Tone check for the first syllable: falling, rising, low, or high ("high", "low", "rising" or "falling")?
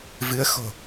rising